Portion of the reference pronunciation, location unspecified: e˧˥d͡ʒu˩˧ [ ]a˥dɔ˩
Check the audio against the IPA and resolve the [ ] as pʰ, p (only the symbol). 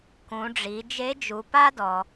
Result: p